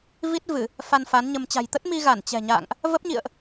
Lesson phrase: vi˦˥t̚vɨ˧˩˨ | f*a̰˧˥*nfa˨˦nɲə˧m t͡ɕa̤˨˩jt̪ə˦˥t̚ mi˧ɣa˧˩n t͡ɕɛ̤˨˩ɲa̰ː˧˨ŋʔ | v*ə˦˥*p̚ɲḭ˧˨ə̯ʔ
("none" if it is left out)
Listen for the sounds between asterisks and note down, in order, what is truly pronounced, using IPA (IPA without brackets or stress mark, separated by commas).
a˧, ə˦˥